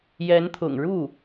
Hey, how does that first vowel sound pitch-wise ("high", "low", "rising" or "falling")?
rising